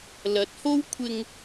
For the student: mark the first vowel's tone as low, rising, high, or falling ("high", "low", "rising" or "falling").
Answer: rising